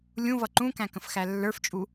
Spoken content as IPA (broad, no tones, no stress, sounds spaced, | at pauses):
lʲ ũ v ʌ ǃ ũ k æ̃ k ə̃ f x æ lː ə˞ f t͡ʃʼ u